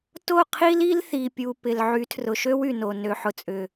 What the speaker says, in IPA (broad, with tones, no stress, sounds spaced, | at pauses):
t o˦˨ qʰ i˦ l i˦ l θ i˨ pʲ u˨ p ɪ˨ l ʕ y˨˦ tʰ r ʊ˨ ʃ ø˦ w y˨ n o˨ n ø˨ ħ ʊ˨ t͡sʼ ʏ˨